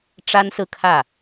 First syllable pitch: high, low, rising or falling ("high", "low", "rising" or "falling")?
high